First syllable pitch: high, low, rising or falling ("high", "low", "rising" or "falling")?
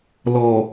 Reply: low